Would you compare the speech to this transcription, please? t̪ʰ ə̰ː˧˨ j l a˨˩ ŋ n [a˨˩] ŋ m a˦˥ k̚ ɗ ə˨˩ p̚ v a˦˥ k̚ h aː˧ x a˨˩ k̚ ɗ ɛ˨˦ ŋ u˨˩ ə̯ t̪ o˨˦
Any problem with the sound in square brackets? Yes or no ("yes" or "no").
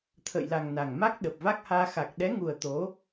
no